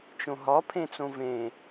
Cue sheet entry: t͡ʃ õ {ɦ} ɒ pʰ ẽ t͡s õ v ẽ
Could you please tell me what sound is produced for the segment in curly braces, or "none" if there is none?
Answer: ɦ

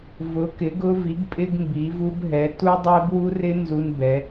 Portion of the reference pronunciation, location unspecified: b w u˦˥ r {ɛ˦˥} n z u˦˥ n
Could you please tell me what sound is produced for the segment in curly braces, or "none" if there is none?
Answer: ɪ˦˥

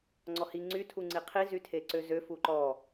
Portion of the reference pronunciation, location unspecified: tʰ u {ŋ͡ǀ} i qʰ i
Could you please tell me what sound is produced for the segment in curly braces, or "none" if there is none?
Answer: ŋ͡ǀ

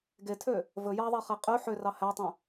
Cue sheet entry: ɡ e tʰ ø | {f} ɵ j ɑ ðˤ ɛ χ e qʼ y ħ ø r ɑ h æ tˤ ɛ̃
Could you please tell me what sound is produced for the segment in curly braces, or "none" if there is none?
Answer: v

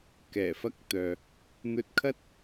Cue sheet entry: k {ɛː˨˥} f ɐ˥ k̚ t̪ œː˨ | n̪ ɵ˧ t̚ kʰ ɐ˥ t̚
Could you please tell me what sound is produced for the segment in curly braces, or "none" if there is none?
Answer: ɛː˨˩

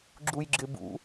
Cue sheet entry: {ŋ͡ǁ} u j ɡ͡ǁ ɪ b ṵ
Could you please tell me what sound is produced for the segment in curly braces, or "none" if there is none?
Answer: ɡ͡ǁ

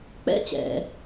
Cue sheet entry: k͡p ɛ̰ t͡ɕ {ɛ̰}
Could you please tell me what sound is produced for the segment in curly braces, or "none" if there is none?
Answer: ɛ̰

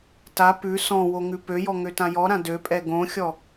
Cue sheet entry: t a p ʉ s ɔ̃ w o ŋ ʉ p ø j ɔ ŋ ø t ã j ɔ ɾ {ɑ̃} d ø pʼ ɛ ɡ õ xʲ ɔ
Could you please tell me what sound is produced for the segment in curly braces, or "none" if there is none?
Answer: ã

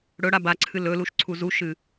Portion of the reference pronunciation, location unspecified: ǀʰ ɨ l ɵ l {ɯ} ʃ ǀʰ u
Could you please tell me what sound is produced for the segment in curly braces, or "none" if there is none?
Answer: u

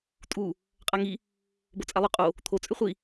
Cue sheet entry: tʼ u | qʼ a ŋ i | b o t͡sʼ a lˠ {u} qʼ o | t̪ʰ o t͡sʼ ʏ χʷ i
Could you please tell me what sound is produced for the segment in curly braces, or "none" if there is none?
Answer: ʏ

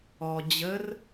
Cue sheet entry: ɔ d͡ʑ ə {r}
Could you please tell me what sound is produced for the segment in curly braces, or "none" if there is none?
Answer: r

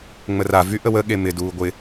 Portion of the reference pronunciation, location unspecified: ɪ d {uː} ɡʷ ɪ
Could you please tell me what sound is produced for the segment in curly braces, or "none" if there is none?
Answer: uː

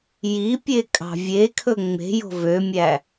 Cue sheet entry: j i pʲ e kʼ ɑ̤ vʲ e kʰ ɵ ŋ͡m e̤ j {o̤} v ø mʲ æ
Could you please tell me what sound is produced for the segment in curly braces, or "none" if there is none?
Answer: o̤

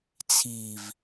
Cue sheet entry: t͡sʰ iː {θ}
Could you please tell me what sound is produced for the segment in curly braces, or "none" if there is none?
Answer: v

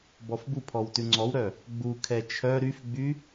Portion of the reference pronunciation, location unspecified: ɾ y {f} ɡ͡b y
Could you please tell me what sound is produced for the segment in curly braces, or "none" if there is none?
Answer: f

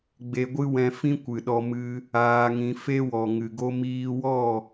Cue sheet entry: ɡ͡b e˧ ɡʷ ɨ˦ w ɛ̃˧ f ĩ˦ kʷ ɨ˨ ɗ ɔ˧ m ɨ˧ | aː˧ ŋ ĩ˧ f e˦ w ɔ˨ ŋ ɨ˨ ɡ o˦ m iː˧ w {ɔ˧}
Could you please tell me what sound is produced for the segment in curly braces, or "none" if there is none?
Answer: ɔ˦˨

